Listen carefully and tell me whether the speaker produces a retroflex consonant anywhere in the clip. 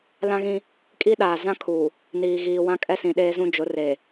no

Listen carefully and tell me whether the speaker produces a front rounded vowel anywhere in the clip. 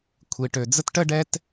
yes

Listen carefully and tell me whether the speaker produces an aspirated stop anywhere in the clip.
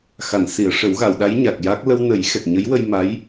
no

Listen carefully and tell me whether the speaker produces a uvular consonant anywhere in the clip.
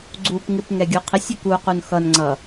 yes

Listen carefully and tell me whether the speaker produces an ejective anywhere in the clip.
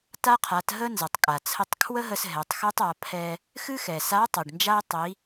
yes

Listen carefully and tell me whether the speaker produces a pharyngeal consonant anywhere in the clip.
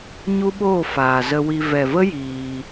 no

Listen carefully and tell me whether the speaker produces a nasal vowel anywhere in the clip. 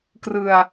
no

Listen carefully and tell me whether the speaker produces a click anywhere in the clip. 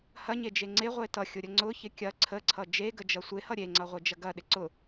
yes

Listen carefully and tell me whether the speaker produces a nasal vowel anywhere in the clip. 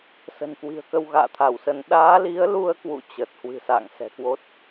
no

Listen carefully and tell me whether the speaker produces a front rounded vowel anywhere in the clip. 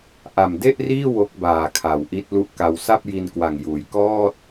no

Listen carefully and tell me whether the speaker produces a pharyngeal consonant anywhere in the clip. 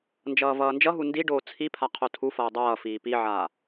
yes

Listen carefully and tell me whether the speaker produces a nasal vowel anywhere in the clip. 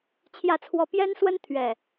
no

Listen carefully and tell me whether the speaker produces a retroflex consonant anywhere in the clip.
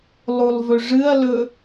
yes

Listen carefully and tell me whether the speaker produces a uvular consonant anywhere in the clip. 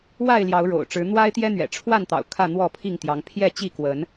no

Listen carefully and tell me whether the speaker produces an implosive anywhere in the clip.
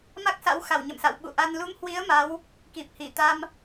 yes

